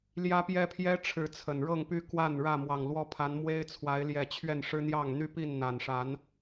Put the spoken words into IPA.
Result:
ljä˦pjɛ˦pʰjɛ˦ ʈ͡ʂʰɻ̩˥˨t͡sʰə˨˩n ɻɤ˥˨ŋpy˦kwa˥˨n ɻä˥˨mwɑ˨˩ŋlwɔ˦pʰa˨˦n mwe˦ɪ̯t͡sʰwa˨˦ɪ̯ljɛ˨˩ t͡ɕʰɥɛ˥˨nʂɻ̩˦n̪jɑ˥˨ŋ n̪y˦pi˥˨n n̪a˨˩n ʂa˨˦n

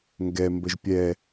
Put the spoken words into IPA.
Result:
ŋɡɛ mbəʒpʲɛ

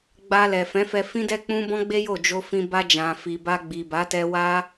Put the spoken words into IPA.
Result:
ɡ͡ba˧lɛ˨fɛ̃˨˦fɛ˧ fĩ˦dɛ˦ k͡pũ˦bɔ̃˦ɡ͡be˦jo˦˨ d͡ʒo˧fĩ˧ ba˧d͡ʒã˨ fi˨ba˧ɡ͡bi˨ba˨˦ tɛ˧wa˦

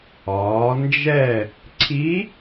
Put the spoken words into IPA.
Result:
ɒː˩˧nd͡ʒɛ˥˨ | ǀʰi˧˥

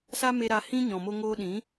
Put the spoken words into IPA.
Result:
sa˦me˧ɾa˧ hĩ˦ɲɔ̃˨mo˧ ŋoː˧ɗĩ˨˦

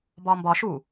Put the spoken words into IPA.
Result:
bɒːmbɒ ʃu

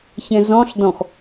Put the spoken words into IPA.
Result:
çɛ̃zɔ̃ɬdɔ̃x

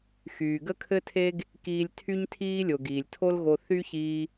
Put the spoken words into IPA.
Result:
xyː˩ɡə˥kʰɘ˥tʰe˥ɡ | kiː˧lʲtʰy˥ɲ tʰiː˥lʲo˩ ɡiː˩lʲtʰo˥lɣo˧ θy˥çiː˧

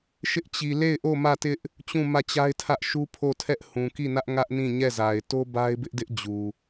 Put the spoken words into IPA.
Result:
ʃɪ˦ʔt͡ɕi˨ le˦˨ɪ̯ʔo˦˨ mä˦˨tɪ˦ʔ | t͡ɕũ˦˨mä˦˨t͡ɕa˦ɪ̯tʰä˦ʔ ʃu˦pʰo˦˨tʰɛ˦ʔhũ˨ ki˦˨nä˦ʔ ŋä˦ʔnĩ˦˨ ɲɛ˦˨za˨ɪ̯ to˦ba˦ɪ̯bɪ˦ʔdɪ˦ʔ d͡ʑu˨

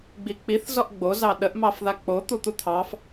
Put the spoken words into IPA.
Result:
ɡ͡bik͡piθ zɔʔɡ͡bo zɑɗəʔ mɑfðak͡po t̪ut̪ut̪ʰɑf

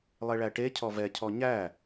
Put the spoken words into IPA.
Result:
lˠeɭæʈecʰɔ vɛcʰɔ ɲæ

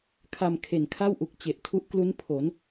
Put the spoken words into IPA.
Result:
kʰa˧mkʰe˨˩nkʰa˥˩wʔu˨˩k̚ t͡ɕe˨˩ʔtʰu˦˥ʔklu˦˥n pʰo˩˦n

